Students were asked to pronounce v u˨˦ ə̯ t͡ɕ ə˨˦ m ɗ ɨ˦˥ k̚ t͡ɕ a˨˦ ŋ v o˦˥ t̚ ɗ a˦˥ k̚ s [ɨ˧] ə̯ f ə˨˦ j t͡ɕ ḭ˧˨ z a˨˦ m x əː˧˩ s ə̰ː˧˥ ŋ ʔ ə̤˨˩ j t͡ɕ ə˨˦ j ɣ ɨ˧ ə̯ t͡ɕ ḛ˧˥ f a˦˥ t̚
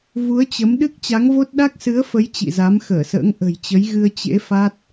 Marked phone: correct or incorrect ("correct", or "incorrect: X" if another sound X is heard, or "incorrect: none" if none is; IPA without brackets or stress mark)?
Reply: incorrect: ɨ˨˦